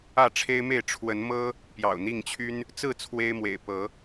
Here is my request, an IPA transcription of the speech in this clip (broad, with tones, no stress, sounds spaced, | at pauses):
ä˥˨ ʈ͡ʂʰ e˦ ɪ̯ m e˥˨ ɪ̯ ʈ͡ʂʰ w ə˨˦ n m ɤ˦ | p j ɑ̰˨˩ ʊ̯ n̪ i˥˨ ŋ t͡ɕʰ y˦ n | t͡s ɹ̩˥˨ t͡sʰ w e˦ ɪ̯ m w ḛ˨˩ ɪ̯ p ɤ˨˦